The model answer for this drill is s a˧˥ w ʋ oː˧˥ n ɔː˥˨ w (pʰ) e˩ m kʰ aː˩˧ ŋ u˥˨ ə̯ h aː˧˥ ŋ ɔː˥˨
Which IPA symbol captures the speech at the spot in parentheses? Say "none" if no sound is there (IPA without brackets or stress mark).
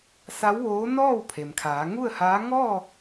pʰ